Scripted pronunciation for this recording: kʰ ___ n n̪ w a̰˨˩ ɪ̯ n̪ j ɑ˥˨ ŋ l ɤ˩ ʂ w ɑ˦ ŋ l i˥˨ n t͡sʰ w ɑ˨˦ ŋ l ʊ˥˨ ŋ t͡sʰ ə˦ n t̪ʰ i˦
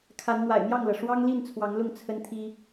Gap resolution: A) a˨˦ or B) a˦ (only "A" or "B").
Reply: A